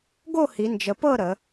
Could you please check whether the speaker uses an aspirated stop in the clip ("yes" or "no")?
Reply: no